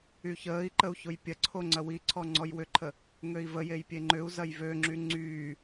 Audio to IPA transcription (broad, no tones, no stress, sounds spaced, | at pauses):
y ç əː i̯ ǃ ə u̯ ç ʊ j pʲ ɐ ǀʰ o ŋ͡ǀ ɐ w i ǀʰ ɔ ŋ͡ǀ ɔ j w ʏ ǃʰ ə | ŋ ø i̯ v ə j e j pʲ e ŋ͡ǃ ʏ u̯ z ɐ j v ø ŋ͡ǁ y ŋ͡ǀ yː